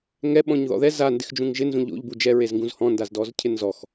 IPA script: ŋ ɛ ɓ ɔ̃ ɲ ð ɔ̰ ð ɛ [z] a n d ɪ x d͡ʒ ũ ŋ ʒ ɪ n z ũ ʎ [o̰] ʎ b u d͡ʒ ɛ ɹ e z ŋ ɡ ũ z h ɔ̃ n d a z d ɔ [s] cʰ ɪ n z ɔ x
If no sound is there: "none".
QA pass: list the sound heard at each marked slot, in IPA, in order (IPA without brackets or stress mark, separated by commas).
z, o̰, z